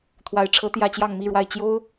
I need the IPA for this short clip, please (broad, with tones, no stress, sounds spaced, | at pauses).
t̪ʰ w a˧˥ ɪ̯ ʈ͡ʂʰ ɤ˧˥ t̪ j ä˥˧ t͡ɕ j ɑ˥˧ ŋ m i˥˧ ɻ w a˥˩ ɪ̯ t͡ɕ j o˥ ʊ̯